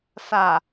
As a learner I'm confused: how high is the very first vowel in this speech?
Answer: low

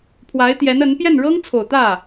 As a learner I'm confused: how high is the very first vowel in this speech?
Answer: low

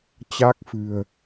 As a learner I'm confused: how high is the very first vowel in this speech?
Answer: low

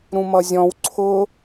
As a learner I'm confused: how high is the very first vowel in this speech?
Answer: high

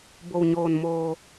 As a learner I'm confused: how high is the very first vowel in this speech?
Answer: mid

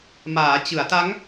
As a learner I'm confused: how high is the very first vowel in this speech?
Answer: low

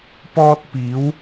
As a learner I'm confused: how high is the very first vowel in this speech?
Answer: mid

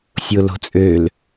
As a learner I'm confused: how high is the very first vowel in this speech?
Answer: mid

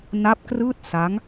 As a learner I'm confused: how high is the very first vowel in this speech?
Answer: low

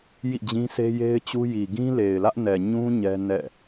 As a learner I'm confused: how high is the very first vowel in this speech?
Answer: high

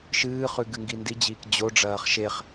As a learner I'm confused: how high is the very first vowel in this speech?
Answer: high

